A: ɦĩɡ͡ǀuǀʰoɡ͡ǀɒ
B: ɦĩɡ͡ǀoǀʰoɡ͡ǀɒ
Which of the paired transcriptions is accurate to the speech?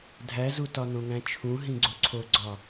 B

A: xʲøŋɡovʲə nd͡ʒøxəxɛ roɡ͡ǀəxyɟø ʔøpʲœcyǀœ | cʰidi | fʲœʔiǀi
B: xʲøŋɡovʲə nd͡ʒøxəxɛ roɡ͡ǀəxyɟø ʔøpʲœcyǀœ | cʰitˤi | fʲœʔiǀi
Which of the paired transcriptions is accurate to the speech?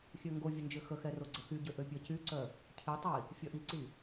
B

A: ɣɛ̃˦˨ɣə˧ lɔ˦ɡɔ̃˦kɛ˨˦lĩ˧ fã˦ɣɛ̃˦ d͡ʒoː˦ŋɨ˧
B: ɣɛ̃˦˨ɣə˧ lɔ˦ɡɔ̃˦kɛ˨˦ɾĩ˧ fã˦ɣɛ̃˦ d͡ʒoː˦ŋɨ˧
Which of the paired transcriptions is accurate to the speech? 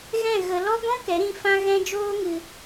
B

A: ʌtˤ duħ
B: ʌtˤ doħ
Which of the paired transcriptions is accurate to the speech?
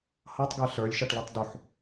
A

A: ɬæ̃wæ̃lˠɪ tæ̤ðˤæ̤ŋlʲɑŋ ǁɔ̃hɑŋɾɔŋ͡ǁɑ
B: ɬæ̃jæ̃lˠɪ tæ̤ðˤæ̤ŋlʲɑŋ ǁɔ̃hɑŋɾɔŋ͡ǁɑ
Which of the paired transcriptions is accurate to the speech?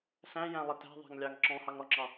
B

